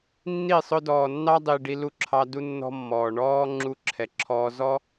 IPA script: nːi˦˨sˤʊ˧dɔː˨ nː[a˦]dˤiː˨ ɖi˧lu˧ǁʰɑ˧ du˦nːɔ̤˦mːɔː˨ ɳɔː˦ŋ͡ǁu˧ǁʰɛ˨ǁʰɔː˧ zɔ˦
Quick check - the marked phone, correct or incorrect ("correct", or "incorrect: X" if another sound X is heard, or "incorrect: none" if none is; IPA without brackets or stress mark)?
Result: incorrect: ɑ˦